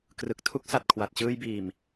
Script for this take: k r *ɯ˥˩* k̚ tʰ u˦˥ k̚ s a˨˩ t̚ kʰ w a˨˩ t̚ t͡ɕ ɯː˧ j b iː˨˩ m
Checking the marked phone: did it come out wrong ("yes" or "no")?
yes